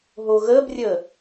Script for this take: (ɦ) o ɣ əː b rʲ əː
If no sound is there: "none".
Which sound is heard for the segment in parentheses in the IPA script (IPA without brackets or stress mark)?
ɦ